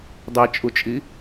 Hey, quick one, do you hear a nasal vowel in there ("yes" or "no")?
no